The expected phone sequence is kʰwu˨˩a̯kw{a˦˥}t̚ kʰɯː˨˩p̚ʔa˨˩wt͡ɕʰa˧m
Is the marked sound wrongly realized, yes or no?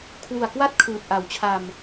no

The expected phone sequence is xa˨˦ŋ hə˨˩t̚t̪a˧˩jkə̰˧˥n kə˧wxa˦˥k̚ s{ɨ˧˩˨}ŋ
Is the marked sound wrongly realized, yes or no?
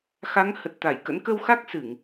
no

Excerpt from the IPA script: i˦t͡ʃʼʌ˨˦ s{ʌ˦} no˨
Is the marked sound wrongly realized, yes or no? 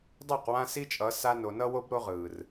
yes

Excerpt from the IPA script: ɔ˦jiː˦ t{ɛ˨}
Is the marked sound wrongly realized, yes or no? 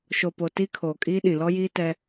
yes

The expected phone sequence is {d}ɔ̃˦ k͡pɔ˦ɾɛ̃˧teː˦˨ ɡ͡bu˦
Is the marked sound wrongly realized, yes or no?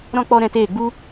yes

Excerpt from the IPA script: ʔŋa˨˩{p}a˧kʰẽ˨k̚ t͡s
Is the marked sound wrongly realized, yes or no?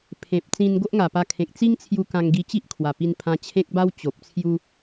no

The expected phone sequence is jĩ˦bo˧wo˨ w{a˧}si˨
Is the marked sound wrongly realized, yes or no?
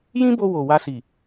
no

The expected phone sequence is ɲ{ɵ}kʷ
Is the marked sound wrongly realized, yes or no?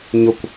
no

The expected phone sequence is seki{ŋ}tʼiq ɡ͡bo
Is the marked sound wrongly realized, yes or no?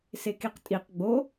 yes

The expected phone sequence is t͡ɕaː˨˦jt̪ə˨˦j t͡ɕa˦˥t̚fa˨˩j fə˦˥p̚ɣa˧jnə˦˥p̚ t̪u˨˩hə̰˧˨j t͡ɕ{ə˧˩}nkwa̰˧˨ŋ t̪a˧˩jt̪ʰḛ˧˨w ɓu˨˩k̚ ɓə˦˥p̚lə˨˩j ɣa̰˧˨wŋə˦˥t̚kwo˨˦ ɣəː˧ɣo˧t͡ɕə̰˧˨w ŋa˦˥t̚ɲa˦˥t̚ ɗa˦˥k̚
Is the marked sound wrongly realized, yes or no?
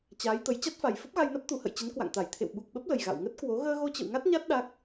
yes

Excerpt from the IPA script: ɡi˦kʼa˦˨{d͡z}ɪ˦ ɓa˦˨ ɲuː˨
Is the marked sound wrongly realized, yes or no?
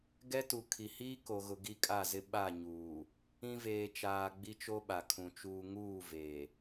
yes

